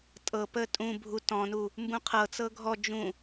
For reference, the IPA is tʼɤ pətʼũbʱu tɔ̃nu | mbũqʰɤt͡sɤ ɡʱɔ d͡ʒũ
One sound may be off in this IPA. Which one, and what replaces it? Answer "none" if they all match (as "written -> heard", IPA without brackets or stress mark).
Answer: none